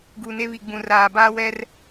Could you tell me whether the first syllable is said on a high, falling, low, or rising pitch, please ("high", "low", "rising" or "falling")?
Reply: low